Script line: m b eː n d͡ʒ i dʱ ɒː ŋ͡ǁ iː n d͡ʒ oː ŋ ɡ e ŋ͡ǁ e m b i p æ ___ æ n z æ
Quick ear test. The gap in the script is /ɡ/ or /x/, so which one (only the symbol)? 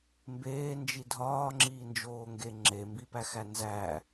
x